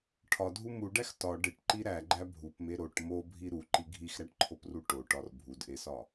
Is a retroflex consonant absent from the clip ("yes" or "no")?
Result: no